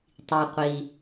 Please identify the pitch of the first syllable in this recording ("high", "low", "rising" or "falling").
low